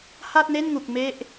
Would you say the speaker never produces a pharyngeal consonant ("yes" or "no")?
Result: yes